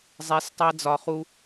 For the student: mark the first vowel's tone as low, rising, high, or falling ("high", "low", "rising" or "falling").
rising